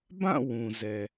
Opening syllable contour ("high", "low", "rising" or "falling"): falling